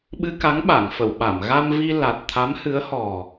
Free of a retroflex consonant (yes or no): yes